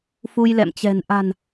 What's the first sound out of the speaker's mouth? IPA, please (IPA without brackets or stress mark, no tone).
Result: f